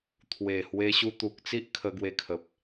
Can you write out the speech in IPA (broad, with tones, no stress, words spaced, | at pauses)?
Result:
t̪ʰwe˨˩hwe˧ ɕu˧t̪u˨k̚t͡si˦ʔ kʰə˧ɡwe˧kʰə˨p̚